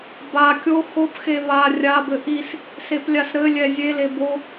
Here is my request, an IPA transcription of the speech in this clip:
ba kʲo xopxe βa rʲabɘ ʔis | seplʲasɾɘlʲɛ zʲele bo

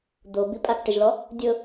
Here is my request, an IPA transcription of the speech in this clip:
d̪o bipʼakʈɪʒlɔ | dʲʊ

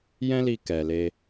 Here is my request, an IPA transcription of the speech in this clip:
jɛ̃˦li˧ kɛ˨le˧

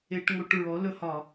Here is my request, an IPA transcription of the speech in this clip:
e˧˩˧ʈŋo˧˩˧ʈ ɹɔ˩˥ lɵ˧˩˧hɒ˧˩˧

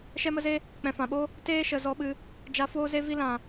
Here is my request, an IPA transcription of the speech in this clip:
ʃɛ˦mə˦ze˦ | k͡pɛ̃˨fã˨ɓo˦ | teː˦ʃə˨ zɔ˧ɓɨ˧ | d͡ʒa˧foː˦ze˦ vi˧lã˨

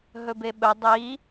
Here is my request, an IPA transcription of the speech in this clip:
ɦɵbeɓɵ dˤi

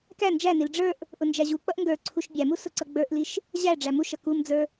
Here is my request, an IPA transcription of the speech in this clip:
kæ nd͡ʒænil ɖ͡ʐə˞ʔ | ʔʊnd͡ʒæʑuk͡pʌʔ ŋɡə˞ ǀʰuʃbʲæmu sʊǀʌɡ͡bə˞ʔliʃ | ʑæ ɖ͡ʐæmuʃʌ kumd͡zə˞

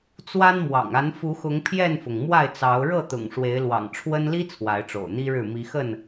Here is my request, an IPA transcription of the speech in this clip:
t͡swa˦nmwɑ̰˨˩ŋ a˨˦nfu˨˦xʊ˨˦ŋ pʰjɛ˥˨nfʊ˩ŋ mwa˥˨ɪ̯t͡sɑ˨˦ʊ̯ ɻɤ˥˨t̪ʊ̰˨˩ŋ ʂwe˨˦ɪ̯lwɑ̰˨˩ŋʈ͡ʂʰwə˦n li˦ t͡sʰwa˨˦ɪ̯ʈ͡ʂo̰˨˩ʊ̯n̪i˦ɻɻ̩˥˨ mi˨˦xə˥˨n

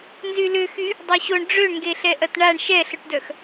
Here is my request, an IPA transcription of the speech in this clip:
nzylʏxy | dˤoɕoɳ ɖ͡ʐøɳŋɡeɬɛ ʔɐtɳaɳ ʃɛɬʊʈdœx

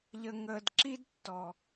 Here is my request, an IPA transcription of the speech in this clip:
ʎə˨ŋəː˨dǁi˦dtːɔ˨

